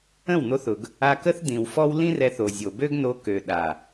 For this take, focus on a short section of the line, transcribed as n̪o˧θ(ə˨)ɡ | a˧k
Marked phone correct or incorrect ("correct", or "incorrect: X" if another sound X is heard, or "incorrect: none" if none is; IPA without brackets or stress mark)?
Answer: incorrect: ʊ˨